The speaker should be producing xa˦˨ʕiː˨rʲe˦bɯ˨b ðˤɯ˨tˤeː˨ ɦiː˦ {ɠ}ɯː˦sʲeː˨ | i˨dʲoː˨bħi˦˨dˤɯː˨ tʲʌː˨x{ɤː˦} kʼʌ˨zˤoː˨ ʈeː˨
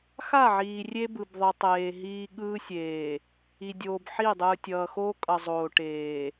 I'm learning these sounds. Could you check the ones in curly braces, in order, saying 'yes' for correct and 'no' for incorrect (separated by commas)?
yes, no